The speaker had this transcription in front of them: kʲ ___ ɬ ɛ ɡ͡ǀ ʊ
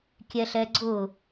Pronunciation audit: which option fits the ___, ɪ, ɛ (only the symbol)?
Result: ɛ